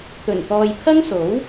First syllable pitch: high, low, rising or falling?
low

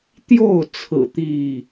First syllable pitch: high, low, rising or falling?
falling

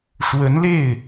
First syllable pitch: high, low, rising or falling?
rising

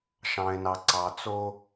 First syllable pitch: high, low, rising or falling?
low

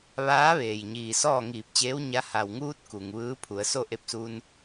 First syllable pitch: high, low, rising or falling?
rising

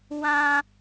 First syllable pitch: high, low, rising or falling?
high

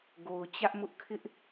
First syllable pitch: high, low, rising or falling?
low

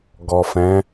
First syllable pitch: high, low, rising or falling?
low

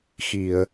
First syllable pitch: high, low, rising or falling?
low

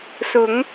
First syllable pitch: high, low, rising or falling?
rising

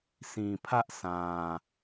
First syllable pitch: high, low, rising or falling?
low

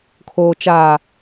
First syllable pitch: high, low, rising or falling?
low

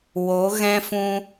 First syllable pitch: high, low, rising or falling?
rising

